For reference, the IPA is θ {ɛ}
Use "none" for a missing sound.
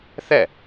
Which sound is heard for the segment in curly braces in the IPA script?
ɛ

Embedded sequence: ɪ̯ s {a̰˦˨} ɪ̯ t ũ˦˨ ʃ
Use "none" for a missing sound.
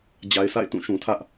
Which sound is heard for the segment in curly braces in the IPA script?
a̰˦˨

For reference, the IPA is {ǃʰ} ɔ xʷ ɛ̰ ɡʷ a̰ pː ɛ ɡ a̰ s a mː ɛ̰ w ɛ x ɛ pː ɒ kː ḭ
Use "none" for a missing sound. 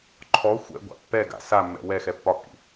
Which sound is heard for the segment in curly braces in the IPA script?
ǃʰ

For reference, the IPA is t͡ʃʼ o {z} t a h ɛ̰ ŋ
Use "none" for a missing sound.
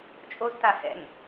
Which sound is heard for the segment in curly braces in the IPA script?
z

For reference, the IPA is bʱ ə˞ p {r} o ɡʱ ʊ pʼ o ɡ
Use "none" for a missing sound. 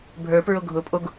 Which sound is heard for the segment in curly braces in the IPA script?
ɹ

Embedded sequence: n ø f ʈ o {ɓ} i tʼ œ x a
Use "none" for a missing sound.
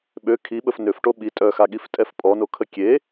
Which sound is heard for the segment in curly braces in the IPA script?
ɓ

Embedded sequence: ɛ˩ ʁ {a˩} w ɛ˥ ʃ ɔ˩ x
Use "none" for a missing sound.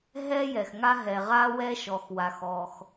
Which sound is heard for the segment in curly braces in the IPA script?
a˥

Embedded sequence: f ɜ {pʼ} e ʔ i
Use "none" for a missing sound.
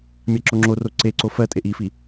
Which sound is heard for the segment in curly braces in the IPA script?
tʼ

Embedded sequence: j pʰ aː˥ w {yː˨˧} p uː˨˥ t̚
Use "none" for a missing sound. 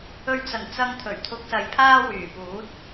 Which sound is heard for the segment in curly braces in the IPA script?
yː˨˩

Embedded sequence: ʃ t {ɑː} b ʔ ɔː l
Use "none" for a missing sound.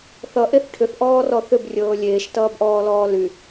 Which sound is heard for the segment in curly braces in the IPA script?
ʌː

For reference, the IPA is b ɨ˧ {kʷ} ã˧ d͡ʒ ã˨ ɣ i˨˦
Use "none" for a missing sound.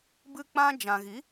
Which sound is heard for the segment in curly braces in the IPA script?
k͡p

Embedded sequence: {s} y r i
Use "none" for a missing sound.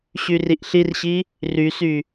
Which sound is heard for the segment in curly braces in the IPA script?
ɕ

